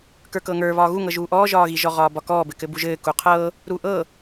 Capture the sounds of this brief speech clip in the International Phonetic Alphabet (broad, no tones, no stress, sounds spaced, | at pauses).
k ə˞ k ɤː ŋ ə˞ β ɒː ɣ u ŋ ɤ ʒ uː ʔ ɔː ʒ ɒː ɣ i ʒ ɔ ʁ ɒː b ɒ k ɔː b ɘ k ɘ b u ʒ ɘː k u qʰ ɤː | ɾ u ʔ ɤ